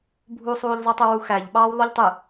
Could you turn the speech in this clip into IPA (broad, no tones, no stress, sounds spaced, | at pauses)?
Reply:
bʱ u sˤ uː ʎ zˤ ɯ tˤ ɯ w u x æ ʎ ɓ ɑː w lˠ u ʎ tˤ ɯ